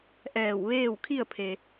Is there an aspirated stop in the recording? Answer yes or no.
yes